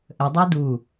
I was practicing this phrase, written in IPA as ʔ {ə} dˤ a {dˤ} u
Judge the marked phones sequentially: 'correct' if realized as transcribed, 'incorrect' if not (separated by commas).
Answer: correct, incorrect